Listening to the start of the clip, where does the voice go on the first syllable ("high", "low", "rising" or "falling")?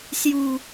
low